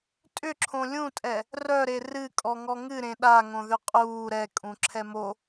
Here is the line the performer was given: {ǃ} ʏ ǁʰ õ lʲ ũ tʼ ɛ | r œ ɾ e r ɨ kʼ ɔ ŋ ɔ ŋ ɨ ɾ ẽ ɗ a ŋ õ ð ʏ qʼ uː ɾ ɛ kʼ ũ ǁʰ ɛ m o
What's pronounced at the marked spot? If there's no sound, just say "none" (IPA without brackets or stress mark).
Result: tʼ